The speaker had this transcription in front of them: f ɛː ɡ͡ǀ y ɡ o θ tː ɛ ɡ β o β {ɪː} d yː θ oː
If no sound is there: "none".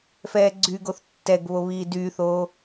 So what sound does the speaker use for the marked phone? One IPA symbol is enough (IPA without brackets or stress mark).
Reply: iː